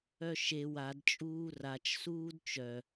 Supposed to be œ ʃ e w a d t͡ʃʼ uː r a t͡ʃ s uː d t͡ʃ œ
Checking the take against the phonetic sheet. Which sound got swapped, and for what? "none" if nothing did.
none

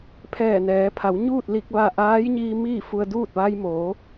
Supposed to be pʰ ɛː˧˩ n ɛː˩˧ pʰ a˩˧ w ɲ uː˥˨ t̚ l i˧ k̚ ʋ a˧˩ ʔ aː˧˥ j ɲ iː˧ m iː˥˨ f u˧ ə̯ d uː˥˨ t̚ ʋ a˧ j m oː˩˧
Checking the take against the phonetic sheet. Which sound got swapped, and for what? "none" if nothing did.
none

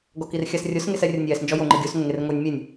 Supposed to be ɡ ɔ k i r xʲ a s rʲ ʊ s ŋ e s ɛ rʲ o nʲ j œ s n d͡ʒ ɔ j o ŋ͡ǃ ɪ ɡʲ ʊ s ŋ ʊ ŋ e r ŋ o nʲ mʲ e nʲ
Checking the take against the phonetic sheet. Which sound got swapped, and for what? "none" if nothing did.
œ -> ɛ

